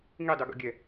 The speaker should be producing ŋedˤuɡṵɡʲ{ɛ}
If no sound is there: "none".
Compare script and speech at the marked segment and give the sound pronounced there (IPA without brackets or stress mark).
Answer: æ